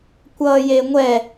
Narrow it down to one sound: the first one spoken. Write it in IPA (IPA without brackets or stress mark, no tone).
kʷ